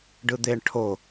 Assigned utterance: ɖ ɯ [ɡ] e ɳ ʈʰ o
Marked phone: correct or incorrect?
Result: incorrect